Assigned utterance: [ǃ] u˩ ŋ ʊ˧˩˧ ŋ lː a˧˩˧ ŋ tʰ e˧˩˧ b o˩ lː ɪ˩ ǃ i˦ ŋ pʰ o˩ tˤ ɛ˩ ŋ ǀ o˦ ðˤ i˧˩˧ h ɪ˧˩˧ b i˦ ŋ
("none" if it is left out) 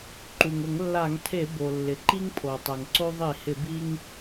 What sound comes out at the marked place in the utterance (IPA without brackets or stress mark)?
ǃ